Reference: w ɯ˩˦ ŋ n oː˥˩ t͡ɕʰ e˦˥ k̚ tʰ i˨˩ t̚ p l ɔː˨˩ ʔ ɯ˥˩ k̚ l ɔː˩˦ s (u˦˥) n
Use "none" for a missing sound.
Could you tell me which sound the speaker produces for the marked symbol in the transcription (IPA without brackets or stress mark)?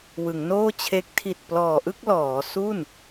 u˥˩